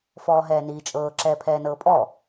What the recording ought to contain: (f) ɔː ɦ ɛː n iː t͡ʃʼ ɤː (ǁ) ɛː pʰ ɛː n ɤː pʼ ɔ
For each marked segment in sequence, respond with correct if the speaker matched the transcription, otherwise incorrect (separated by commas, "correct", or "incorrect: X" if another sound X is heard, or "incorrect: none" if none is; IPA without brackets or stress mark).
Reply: correct, correct